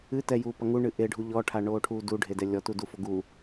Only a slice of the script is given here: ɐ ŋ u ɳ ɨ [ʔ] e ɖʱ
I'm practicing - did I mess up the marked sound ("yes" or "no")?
no